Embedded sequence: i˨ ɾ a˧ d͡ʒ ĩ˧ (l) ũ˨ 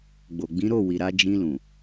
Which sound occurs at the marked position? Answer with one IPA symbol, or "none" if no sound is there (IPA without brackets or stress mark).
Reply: l